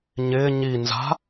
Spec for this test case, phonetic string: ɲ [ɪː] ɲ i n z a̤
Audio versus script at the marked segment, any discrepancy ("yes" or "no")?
no